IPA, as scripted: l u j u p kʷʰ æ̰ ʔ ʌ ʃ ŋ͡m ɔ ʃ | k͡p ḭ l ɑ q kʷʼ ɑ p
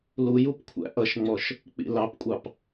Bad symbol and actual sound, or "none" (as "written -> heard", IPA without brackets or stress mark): q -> p